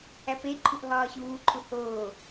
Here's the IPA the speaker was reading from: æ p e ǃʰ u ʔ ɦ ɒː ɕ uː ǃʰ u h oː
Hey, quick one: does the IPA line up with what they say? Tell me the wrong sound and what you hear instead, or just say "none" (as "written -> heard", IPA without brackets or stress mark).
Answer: none